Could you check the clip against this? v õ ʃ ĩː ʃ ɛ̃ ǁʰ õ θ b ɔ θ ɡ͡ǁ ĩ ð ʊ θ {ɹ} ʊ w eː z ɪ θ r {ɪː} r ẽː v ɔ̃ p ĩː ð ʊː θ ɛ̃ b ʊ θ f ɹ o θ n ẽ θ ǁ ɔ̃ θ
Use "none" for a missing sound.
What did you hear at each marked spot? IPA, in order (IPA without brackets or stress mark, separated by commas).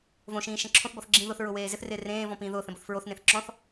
ɹ, ɪː